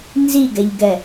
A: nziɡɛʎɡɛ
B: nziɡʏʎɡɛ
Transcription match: A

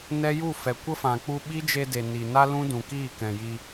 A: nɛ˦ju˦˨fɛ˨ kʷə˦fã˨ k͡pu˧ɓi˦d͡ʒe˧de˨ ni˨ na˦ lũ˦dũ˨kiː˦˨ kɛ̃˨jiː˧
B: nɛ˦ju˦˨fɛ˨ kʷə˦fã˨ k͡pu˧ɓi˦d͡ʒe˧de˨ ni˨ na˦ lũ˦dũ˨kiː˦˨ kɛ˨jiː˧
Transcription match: A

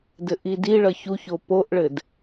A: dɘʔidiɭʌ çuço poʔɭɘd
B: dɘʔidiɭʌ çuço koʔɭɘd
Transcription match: A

